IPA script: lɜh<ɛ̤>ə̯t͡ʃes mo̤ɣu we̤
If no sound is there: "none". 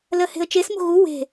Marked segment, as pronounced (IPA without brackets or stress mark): e̤